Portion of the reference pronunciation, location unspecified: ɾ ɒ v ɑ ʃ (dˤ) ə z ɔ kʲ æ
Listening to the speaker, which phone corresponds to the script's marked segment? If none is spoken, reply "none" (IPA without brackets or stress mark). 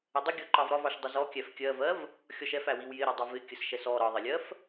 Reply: dˤ